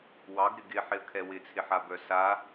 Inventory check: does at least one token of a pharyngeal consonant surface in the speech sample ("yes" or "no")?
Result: yes